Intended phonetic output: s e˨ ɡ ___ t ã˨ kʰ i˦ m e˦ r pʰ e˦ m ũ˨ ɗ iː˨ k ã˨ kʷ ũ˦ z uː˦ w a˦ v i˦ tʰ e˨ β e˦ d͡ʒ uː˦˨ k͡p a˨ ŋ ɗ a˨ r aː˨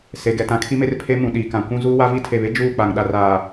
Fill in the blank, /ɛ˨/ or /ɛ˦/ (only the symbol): ɛ˨